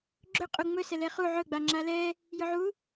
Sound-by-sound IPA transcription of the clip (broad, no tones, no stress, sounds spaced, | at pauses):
ɡ͡ǁ ɵ qʼ u ŋ͡m ɵ s ɛ l ɛ χ u ʕ ɵ ɡ͡b a ŋ͡ǁ a l ɛ | j ɵ ʕ u